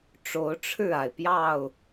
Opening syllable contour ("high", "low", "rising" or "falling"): rising